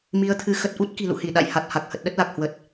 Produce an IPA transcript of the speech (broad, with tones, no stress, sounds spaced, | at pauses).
m i˨˦ ə̯ t̪ʰ ɨ˨˦ x ə˨˩ t̚ ʔ u˦˥ t̚ k i̤˨˩ l ṵ˧˨ h i˧˩ ɗ a̰˧˨ j h a˨˩ t̚ h a˨˩ k̚ h ə˨˩ t̚ ɗ ə˦˥ t̚ l a˨˩ k̚ h w ə˨˩ t̚